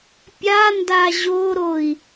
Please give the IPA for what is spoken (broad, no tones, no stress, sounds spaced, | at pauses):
pʲ a n d a ʑ o ɾ o i̯